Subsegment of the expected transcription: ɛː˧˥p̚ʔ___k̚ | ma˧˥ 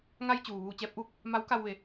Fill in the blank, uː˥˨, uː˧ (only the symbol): uː˥˨